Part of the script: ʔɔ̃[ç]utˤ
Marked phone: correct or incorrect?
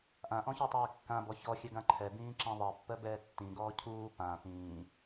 correct